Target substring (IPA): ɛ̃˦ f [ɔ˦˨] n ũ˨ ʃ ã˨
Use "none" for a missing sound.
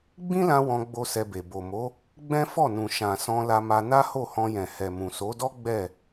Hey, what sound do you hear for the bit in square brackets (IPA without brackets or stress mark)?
ɔ˦˨